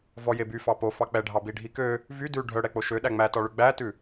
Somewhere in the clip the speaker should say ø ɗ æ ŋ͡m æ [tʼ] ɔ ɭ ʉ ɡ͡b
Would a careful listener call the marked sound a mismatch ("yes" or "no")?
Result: yes